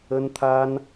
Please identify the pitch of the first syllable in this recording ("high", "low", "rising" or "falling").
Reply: high